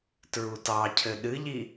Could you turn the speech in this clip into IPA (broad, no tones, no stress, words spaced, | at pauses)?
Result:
tɹutɑcʰɘ ɗɨʎi